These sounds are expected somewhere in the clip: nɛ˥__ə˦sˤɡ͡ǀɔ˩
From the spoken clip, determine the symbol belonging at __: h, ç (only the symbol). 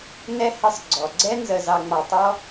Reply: h